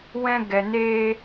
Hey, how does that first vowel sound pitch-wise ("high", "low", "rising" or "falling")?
high